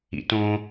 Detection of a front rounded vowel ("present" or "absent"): absent